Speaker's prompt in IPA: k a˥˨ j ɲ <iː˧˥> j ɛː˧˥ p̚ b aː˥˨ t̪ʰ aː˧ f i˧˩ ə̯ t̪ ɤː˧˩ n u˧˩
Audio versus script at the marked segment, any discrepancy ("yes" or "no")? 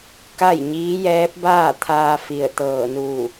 no